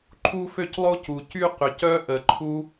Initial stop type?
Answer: click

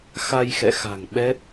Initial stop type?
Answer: implosive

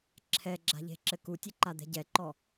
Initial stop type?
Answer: click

